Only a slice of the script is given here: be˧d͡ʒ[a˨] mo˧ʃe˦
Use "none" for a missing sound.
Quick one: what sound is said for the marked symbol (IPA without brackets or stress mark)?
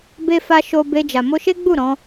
a˨